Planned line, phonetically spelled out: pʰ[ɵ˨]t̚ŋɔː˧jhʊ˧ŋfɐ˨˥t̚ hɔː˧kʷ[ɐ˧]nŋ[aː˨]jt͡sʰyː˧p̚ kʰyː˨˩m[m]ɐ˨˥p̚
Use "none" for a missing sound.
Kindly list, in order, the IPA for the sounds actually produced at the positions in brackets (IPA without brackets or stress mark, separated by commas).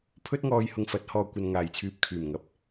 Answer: ɵ˥, ɐ˧, aː˨, ŋ